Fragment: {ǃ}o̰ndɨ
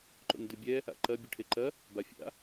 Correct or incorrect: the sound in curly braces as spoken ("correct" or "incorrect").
correct